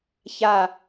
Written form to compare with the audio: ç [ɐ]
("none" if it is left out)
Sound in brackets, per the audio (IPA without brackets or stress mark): a